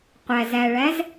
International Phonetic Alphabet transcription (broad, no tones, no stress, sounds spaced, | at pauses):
qʷ æ z æ ɭ æ z